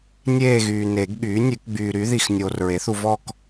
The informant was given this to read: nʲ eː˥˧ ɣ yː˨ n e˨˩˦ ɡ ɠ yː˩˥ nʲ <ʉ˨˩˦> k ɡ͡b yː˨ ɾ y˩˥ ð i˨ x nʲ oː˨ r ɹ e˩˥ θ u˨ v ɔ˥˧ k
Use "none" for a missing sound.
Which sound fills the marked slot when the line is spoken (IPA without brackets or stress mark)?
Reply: ʉ˨˩˦